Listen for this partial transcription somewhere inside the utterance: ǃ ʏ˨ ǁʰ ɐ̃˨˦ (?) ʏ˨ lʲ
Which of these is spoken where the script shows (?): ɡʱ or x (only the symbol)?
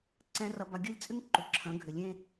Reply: ɡʱ